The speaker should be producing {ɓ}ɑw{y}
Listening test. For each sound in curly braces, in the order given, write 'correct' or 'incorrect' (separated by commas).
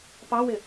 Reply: incorrect, incorrect